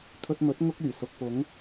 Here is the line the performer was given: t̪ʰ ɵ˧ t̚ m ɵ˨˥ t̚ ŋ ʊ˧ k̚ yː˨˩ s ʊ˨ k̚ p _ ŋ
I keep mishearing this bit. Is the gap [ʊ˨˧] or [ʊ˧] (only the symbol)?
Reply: ʊ˨˧